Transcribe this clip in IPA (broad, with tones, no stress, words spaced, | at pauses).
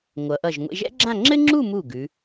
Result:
ŋʷʌ˩˧ʔʌ˧˩ʒ ŋʷḛ˧ʒɛ̰˥ɡ͡ǁã˥˧ ŋ͡ǁɘ˥ŋ͡ǁu˥˧mu˧˩ ɡʉ˩˧